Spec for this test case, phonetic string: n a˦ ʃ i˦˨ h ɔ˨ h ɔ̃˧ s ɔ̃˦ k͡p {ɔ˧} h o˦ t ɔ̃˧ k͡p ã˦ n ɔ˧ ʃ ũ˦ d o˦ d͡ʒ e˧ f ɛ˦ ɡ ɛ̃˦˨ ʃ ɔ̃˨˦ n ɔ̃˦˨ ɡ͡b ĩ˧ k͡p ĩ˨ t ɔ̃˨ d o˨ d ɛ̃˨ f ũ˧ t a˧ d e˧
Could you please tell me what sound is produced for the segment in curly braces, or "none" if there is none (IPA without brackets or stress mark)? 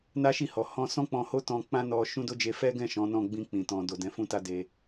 ɔ̃˧